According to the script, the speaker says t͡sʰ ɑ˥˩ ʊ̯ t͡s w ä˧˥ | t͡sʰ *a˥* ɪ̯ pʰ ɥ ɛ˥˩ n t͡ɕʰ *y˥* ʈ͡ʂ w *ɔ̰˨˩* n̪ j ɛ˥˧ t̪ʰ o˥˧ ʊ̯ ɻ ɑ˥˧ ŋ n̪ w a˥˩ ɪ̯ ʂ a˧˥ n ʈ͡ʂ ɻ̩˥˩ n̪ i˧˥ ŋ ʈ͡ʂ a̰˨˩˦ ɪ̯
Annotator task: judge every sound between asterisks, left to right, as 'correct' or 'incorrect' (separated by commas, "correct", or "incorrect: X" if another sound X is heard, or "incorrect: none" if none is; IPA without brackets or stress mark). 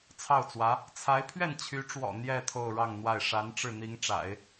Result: incorrect: a˧˥, incorrect: y˧˥, correct